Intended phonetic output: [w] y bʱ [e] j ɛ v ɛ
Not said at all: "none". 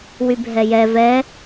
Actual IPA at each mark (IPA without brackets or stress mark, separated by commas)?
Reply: w, ɛ